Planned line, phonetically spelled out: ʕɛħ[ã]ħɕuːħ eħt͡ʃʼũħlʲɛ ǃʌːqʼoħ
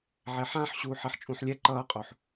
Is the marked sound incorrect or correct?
correct